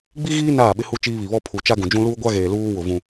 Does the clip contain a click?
no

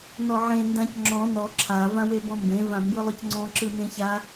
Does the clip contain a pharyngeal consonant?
yes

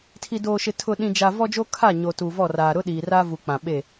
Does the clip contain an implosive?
yes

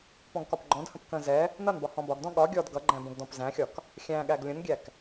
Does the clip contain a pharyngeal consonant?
no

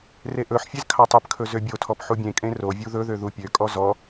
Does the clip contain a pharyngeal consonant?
yes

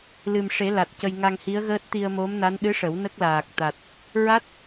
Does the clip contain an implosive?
yes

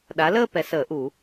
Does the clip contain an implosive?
yes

